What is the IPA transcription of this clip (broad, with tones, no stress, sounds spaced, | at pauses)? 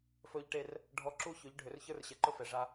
f ɵː˦ ʎ ʈ e˦ r | ɖʱ ɔ˦ ǁ u˦ ç ɵ˨˦ ʎ ɖʱ ʏ˨ r ç ə˞˦ r ɕ ɛ˨ ǃ ɵ˦ f ɛ˨ ʐ a˦